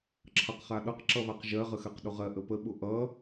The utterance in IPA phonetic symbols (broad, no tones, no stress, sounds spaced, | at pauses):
ǁʰ ʌ q χ a ɗ ʌ q ǁ ʌ β a q ʒ ɜ ʁ ə x ɜ q ɗ ʊ ʁ ɜ ʔ ə p ə ɓ ʊ ʔ ʌ